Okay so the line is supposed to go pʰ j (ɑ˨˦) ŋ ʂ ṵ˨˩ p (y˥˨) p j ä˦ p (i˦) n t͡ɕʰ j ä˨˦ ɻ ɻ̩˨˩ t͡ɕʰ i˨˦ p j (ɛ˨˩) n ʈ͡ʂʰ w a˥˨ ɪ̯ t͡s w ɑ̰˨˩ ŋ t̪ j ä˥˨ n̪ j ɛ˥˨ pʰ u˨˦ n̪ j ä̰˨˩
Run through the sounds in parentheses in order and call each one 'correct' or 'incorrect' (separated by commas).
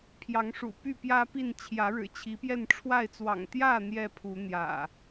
correct, correct, incorrect, incorrect